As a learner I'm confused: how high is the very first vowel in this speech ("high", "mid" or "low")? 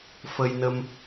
mid